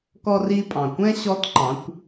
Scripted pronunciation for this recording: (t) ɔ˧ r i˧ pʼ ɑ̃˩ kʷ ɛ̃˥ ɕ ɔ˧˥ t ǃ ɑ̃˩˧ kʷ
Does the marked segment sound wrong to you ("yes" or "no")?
yes